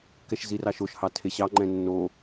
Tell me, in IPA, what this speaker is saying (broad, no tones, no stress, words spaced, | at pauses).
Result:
kɛʃzirɑʃoʃ hɑtʰeɕɑ ŋ͡ǃɛ̃nːo